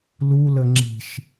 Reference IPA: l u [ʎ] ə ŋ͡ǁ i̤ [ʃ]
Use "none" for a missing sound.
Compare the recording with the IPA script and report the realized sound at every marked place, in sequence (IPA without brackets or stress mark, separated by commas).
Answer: l, ʃ